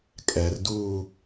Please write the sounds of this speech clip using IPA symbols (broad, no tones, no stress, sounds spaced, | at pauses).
kʼ ɛ r d uː